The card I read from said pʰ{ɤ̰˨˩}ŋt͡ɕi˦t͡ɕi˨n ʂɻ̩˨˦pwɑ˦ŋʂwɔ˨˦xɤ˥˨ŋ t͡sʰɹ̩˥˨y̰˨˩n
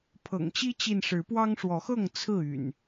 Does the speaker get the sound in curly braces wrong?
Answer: no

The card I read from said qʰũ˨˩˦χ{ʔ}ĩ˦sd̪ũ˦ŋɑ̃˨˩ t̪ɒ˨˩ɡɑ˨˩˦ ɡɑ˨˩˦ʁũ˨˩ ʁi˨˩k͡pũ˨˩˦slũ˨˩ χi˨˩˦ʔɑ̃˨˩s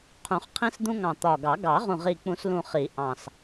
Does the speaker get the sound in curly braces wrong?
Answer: yes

